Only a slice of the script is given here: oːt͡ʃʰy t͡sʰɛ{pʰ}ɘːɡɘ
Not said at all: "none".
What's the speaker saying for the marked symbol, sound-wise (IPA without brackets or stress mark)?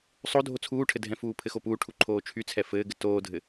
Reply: f